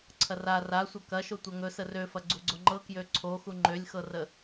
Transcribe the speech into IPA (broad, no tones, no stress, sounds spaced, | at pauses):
ǀʰ ɐ r a r a sʷ ɐ k ɐ ʃ o tʷ ɤ ŋ ɵ s ə r ø f ɐ ɡ͡ǀ u ɡ͡ǀ o ŋ͡ǃ ɤ k j ø ǀʰ o x u ŋ͡ǃ ø lʲ x ɤ r ə